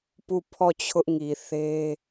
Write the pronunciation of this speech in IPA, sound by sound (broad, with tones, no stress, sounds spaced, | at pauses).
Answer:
p u˦˨ pʰ ɔ˦˨ t͡ɕʰ ʊ˦ ʔ ŋ i˨ θ e˦